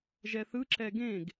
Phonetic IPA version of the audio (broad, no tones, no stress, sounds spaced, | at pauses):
ʒ ɛ θ ɯ ǁ ɛ ɡ ẽ ɡ